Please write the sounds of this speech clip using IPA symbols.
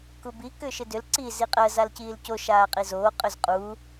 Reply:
k u b i k ʏː ʃ ɪ d ʏ l ǀ i z i qʼ ɜ z a l c iː l c o ʃ aː qʼ i z oː qʼ ʏ z qʼ u

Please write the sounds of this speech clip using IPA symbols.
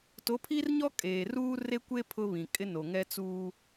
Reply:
t o˨˦ pʰ i˦ r ɲ ɔ˦ kʼ eː˨ r uː˦ r e˦ kʷ e˦ pʰ ʊ˦ β ĩ˨ kʼ ɪ˦ n o˨ ŋ ɛ˦ t͡s uː˦

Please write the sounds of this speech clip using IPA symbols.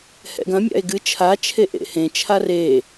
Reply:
h ɛ̰ ɡ ɐ̃ mʲ a̰ e̯ ɡ ɨ t͡ʃʰ a t͡ʃʰ e ʔ ḛ h ẽ t͡ʃʰ a r e

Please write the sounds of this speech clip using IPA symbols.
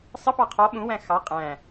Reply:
sˤ ə p ɑ qʰ ɔ ɓ ũ w æ̃ x ɑ qʼ æ̃

